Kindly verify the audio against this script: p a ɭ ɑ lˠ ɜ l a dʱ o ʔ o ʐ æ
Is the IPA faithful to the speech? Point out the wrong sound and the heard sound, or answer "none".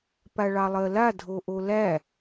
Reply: ʐ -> l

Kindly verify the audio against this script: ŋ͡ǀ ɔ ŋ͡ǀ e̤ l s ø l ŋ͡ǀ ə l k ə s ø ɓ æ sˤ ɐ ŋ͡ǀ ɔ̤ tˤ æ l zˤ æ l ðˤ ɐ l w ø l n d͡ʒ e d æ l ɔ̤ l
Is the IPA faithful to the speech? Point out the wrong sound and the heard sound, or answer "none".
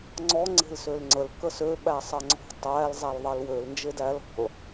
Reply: none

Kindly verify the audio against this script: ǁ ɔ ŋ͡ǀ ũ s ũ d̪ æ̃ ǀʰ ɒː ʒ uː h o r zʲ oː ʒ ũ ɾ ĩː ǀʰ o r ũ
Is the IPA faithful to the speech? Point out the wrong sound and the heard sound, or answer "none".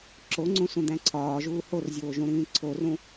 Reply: ɔ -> o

